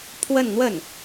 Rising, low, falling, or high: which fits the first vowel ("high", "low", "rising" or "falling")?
falling